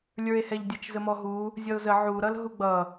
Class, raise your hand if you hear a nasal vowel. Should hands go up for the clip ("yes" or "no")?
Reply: no